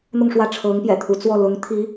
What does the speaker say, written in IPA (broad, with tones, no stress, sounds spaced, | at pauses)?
n̪ ʊ˥˧ ŋ ʂ w ä˥˩ ʈ͡ʂʰ ɤ˧˥ ŋ p j ɛ̰˨˩ t̪ʰ u˧˥ t͡s w ɔ˥˩ l ʊ˧˥ ŋ t̪ʰ i˧˥